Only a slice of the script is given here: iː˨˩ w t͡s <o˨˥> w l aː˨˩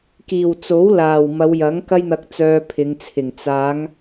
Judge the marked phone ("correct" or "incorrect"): correct